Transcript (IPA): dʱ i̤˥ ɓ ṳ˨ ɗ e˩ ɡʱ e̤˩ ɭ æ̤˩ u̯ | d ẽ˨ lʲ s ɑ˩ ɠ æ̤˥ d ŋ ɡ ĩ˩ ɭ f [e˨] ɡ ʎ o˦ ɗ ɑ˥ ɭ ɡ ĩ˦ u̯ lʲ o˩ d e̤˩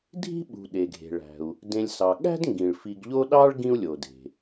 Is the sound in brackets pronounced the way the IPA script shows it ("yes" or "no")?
no